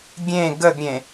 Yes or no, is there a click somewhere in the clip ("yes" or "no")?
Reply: no